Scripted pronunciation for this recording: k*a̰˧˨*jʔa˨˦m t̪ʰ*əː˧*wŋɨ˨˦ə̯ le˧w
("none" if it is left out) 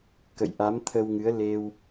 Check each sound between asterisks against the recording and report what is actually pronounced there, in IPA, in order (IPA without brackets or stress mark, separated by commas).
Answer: ə̰˧˨, ə˧